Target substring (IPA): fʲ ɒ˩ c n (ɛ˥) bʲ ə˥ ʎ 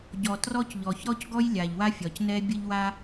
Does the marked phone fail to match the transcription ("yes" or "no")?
no